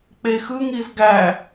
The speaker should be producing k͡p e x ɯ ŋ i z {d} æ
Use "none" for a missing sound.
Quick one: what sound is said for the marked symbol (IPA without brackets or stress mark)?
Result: ɡ